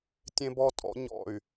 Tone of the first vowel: high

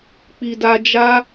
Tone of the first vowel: low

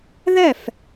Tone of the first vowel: falling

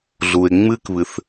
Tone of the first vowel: low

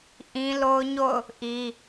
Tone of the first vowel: high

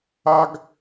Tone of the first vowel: high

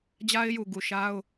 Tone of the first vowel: high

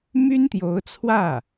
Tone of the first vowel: high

